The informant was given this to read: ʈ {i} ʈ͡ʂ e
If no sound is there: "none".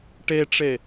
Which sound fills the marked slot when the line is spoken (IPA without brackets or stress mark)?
e